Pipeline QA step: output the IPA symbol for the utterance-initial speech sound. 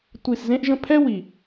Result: tʷ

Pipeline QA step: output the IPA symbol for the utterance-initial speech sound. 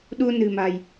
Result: ɗ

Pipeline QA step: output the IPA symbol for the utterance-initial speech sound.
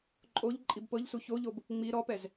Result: ǃʼ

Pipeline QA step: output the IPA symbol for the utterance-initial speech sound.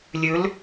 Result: lʲ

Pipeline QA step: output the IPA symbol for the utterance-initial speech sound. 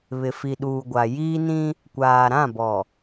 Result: β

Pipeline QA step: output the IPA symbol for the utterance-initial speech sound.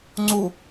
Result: ŋ͡ǀ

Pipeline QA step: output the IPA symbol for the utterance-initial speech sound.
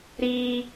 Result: ɾ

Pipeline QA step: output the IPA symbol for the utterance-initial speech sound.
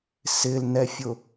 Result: s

